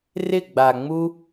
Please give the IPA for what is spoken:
rɪ˥˧ɡ͡ba˧ŋ͡mu˥

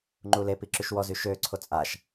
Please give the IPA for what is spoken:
ŋ͡ǃulepi ǁyʃwɔzy ʃøǀʰo t͡sʼaʃ

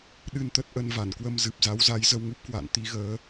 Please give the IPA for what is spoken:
ɗɨ˧nt̪ə˦˥t̚ʔə˧n va˧˩nkwə˧m zɨ˨˩p̚za˨˦wza˨˦j zə˧wŋu˦˥p̚kwa̰ː˧˨n t̪i˨˦ɣəː˨˦

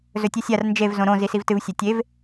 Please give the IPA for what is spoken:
zɵtʲɨsʲar nd͡ʒev zõɾõ zisivtɨv sʲɐtʲev

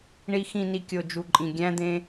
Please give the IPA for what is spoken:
ɳi˨xĩ˨ni˨ kʲo˨d͡ʒu˨ǃʼĩ˨ ɡʲæ̃˦d̪ẽ˦

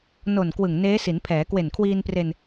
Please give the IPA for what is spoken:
no˨˩n kwɯ˨˩ŋneː˦˥si˩˦npʰɛː˩˦ kwe˨˩nkʰwiː˧npre˧n

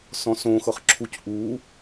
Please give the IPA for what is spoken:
sɔ̃sõ xɤχǁʰuc ʔu

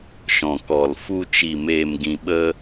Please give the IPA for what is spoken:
ʃɔ̃˨kɔ˨lfu˧ t͡ʃi˨meː˨mɡĩ˨ɓə˧

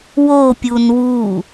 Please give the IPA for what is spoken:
wopʲun wu

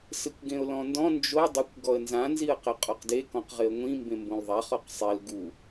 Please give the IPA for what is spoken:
sɪkʷɡẽʊ̯lɔ̃ndɔ̃ nd͡ʒo dˤɪkʷ ɡɔə̯nzã nziə̯qɛqʼɔqde kɔ̃qʁɪə̯ŋʷĩ mbẽmbõlðˤa χɔqsˤel ɡu

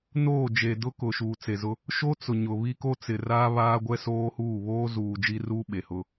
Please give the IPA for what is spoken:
noː˦˨d͡ʒe˨dʊ˦ kʊ˨ʃuː˨t͡se˨zʊ˦ | ʃo˦ t͡sʊ˨ɲʊ˨ βi˦ko˦t͡sɪ˨raː˦ βaː˦ɡʷɛ˦soː˦huː˦˨ βoː˦zuː˨ d͡ʒi˦ruː˦ ɓe˨hʊ˦

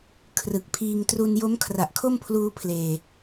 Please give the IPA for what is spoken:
kʰrɯ˨˩k̚ pʰiː˧ŋ tru˧njo˦˥m kʰra˨˩ʔkʰo˥˩mpʰluː˧ pʰleː˨˩

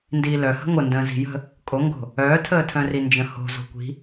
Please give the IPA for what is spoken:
ndiːlœ hə̤ŋʷəndə̃ː zi̤jə̤ | kʼoŋɡo̤ | œːtʰəːtʰœ̃ri nd͡ʒə̃ho̤ zo̤kʷi̤

